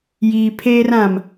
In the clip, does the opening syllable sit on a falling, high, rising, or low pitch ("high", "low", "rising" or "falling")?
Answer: low